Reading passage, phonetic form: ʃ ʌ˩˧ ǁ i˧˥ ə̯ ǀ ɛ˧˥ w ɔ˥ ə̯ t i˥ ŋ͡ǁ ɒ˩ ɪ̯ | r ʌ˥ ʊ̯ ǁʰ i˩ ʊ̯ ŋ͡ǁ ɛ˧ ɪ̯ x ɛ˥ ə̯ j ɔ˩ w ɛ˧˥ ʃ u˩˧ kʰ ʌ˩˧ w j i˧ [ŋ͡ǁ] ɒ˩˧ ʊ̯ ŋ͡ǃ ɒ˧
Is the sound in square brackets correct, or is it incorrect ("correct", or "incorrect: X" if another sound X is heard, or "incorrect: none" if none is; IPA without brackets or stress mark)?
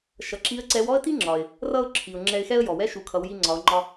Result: incorrect: ŋ͡ǀ